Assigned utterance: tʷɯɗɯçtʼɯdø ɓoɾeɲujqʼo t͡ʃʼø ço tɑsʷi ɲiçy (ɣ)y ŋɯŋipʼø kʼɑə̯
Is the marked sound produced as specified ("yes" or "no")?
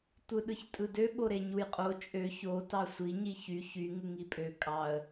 no